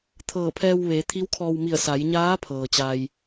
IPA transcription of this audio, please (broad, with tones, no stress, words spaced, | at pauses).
t̪ʰɤː˧˩pʰɛː˧w ʋeː˩˧t̪ʰi˧˥wkʰɔː˧w mi˧˩ə̯sa˩˧jɲaː˧˥pʰɤː˩ t͡ɕa˧j